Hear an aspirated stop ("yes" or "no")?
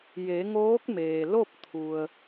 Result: yes